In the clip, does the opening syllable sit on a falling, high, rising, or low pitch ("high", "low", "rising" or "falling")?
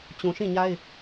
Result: low